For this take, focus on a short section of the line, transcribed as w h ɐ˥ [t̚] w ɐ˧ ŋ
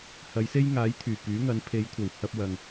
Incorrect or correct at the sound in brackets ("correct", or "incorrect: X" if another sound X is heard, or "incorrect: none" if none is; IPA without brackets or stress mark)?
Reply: incorrect: p̚